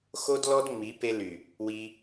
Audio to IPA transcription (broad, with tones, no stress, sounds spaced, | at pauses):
x o˦ d l ɔ˦ d ŋ͡m i˨˦ p e˧ l y˨ | w i˧